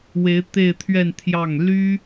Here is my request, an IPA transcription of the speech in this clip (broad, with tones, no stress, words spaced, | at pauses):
we˧˥ɪ̯t̪e˥˧ɪ̯t̪ʰɥɛ˥˧n t̪ʰjɑ˥˩ŋ ly˥